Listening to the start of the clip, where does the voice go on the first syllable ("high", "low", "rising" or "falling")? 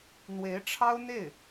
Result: rising